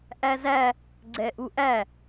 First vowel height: low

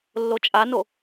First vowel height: mid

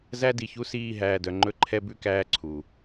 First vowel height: low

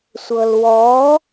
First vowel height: mid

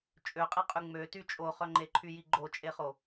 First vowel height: mid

